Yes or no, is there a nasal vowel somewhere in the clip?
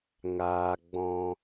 yes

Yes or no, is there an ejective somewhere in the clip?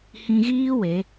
no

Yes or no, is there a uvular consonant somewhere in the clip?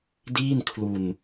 no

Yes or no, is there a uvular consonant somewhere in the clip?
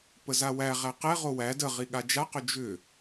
yes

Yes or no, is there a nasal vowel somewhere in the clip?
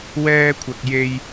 no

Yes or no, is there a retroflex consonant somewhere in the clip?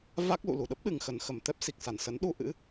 no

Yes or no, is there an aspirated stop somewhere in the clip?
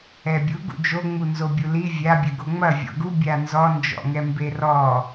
no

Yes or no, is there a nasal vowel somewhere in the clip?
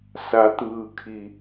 no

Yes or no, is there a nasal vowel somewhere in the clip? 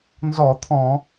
yes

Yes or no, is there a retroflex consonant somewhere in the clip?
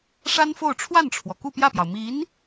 yes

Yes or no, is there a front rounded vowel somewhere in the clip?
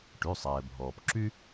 yes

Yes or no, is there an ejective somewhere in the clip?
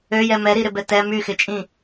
yes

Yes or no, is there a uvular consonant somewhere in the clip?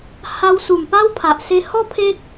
no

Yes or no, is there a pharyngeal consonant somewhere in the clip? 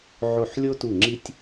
yes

